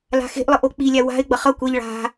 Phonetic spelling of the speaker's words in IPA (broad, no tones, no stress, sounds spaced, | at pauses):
l a̤ x e̤ ʔ lˠ ɯ ʔ o k͡p i lʲ a w a̤ ɪ̯ ɡ͡b ʌ χ ʌ kʷ ɛ ʎ ɭ a̤